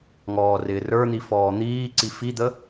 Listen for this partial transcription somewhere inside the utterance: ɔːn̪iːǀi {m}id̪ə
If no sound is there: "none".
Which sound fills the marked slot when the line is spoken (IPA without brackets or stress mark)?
f